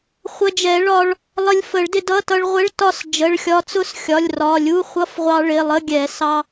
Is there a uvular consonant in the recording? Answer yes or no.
yes